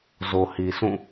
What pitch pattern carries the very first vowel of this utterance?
low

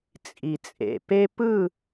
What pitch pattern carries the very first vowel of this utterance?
low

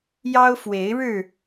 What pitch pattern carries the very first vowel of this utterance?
high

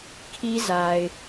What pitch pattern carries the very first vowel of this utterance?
high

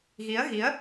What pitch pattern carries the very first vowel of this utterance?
rising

